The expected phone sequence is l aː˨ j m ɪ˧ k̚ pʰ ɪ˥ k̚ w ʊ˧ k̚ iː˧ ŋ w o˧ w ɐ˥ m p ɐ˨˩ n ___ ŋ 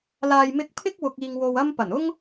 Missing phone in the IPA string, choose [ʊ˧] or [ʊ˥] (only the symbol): ʊ˥